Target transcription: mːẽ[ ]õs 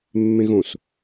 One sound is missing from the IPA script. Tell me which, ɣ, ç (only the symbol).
ɣ